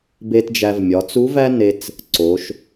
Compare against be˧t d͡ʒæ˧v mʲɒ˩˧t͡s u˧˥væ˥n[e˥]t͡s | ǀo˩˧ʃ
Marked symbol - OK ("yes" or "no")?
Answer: no